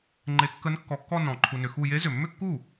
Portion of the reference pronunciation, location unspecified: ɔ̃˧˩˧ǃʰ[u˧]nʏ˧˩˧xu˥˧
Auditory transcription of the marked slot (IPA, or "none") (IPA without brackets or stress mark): u˧